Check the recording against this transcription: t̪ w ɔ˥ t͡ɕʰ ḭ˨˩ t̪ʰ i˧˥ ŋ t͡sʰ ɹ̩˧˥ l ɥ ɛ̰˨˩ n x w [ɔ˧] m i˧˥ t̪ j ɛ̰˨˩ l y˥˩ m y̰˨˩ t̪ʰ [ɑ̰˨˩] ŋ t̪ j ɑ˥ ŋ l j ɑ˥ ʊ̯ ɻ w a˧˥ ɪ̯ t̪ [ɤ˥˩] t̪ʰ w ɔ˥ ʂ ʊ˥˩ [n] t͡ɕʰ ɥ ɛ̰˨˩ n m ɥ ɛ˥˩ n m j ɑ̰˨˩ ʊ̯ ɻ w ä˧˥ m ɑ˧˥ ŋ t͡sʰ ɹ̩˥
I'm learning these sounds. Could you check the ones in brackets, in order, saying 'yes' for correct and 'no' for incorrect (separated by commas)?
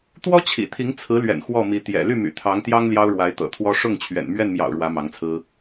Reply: no, no, no, no